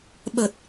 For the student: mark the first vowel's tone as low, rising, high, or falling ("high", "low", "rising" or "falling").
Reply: low